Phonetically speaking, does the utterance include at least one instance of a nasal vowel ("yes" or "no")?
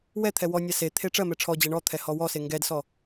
no